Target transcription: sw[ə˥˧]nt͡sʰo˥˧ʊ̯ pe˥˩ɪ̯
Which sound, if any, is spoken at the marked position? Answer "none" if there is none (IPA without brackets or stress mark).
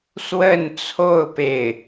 ə˥˧